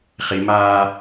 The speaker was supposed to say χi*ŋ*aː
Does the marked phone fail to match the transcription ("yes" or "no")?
yes